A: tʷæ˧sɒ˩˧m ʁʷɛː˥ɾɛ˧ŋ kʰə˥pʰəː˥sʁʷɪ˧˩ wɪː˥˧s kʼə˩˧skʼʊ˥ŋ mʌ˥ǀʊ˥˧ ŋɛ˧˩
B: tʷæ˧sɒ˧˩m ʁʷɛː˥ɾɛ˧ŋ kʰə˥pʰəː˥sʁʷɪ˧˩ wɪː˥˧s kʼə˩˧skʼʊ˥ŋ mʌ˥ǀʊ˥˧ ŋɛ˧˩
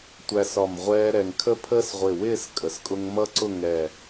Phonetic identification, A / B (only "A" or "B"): B